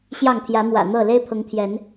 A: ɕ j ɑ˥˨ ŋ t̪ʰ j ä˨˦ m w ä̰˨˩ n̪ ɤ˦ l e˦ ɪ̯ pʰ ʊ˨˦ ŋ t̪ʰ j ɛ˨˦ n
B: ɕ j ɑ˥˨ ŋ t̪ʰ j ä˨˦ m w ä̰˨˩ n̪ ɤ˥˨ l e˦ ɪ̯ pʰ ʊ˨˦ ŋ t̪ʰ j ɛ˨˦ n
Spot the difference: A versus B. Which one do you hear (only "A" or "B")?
B